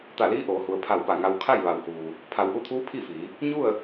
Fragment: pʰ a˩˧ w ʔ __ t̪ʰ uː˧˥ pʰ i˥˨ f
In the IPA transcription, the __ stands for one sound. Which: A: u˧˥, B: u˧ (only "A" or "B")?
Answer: B